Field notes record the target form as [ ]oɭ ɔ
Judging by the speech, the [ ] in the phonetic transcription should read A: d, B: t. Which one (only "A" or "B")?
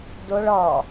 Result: A